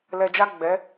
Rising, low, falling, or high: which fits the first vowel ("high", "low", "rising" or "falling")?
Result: low